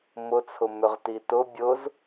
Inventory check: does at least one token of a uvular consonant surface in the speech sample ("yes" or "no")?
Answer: yes